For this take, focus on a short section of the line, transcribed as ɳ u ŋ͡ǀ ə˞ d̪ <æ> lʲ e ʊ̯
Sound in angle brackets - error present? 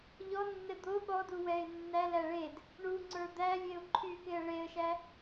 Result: no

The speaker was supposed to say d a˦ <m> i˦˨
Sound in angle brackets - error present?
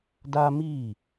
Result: no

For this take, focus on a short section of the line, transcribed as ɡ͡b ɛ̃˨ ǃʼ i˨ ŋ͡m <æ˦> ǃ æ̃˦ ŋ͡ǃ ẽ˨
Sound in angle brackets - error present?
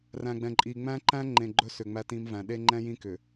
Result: yes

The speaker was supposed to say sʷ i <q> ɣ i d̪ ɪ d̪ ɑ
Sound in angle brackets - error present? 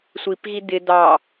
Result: yes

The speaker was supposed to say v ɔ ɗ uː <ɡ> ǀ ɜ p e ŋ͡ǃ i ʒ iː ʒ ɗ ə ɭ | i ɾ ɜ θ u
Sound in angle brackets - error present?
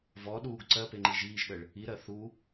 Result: no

